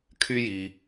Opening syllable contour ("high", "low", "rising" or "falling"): high